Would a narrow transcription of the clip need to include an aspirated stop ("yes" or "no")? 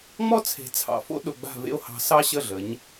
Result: yes